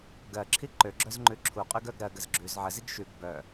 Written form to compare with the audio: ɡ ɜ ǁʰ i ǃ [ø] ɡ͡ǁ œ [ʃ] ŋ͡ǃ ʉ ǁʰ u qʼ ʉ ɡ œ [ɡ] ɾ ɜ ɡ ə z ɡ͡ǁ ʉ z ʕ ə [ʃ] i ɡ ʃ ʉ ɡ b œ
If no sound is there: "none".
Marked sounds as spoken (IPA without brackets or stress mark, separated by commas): ø, z, ɡ, z